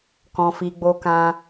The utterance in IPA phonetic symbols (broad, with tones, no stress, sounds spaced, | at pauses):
k ɔ̃˨ f i˨ ɡ͡b o˧ k ã˧